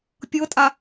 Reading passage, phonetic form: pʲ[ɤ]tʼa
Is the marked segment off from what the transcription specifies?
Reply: no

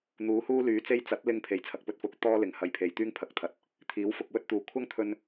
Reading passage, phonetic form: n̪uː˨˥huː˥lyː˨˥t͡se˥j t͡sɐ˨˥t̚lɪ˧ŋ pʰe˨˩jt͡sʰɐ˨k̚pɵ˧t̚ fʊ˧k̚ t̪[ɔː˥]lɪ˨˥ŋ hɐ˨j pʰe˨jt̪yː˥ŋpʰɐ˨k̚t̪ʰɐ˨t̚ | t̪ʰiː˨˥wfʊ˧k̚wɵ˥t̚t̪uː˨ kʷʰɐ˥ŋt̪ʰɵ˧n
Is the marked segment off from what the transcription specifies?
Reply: no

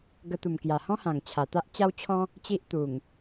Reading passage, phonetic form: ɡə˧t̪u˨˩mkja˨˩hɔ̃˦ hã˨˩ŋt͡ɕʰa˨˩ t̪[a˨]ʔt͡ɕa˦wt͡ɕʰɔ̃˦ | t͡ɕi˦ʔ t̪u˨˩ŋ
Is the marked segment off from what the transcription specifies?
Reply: yes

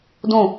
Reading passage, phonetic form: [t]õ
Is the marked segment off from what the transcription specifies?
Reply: yes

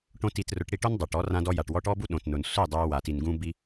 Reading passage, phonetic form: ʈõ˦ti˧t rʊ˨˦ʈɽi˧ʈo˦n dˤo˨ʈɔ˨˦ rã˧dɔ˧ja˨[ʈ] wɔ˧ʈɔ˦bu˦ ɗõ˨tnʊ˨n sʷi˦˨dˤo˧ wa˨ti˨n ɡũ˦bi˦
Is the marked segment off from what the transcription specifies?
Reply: no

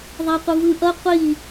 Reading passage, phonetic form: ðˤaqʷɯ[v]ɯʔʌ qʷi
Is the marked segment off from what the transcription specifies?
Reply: no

